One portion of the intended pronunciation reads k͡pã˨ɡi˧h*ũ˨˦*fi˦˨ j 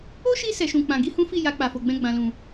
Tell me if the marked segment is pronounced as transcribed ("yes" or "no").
no